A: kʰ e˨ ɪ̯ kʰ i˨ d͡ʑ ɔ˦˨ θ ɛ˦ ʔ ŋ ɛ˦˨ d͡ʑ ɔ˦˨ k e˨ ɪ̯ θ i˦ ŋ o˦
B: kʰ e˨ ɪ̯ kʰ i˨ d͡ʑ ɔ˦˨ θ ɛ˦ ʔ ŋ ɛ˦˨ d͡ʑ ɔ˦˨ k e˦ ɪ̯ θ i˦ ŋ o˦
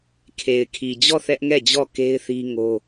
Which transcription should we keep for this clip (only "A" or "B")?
B